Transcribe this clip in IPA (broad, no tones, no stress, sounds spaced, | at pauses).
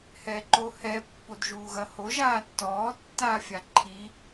h ɛ ǃ o h ɛ pː o d ʒ uː ɣ ɐ h o ʒ aː tː ɔː tː aː fʲ a ǃʰ i